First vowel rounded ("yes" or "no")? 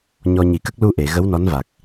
yes